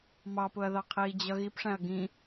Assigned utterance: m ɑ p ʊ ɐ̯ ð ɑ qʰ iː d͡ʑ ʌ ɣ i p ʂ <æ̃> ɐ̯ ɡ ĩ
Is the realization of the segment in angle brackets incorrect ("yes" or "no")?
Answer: no